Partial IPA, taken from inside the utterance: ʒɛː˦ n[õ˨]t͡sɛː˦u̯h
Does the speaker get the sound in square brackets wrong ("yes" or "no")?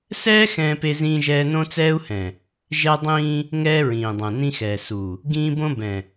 yes